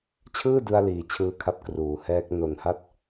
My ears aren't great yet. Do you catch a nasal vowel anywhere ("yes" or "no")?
no